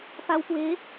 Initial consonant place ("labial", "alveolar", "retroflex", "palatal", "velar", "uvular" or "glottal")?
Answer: labial